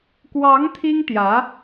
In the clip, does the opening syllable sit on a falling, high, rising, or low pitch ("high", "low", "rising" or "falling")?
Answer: rising